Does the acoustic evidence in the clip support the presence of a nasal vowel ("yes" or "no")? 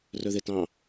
yes